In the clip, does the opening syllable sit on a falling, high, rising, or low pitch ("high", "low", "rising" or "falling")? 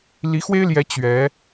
rising